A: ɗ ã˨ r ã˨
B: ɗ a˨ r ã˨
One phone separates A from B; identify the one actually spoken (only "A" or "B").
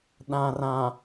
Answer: A